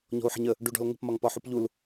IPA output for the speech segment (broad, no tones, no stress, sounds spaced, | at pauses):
ɲ ɔ̤ u̯ ħ ə̤ ɲ ə | ɖ u ɖ ɔ̤ l ŋ ə̤ p m ɒ ŋ p ɒ ħ u p ʎ u l